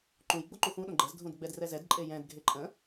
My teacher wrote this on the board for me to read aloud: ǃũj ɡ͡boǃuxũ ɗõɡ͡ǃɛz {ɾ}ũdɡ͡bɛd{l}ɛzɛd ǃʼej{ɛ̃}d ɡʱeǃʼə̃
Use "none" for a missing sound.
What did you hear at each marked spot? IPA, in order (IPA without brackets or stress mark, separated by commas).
dʱ, r, ɛ̃